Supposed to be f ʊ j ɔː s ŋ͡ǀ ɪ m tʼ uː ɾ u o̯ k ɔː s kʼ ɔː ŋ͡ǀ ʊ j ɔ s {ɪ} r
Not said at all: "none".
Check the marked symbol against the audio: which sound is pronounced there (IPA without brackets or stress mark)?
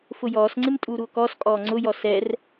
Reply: ɛ